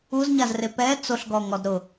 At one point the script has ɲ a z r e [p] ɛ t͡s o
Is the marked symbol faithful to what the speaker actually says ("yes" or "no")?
yes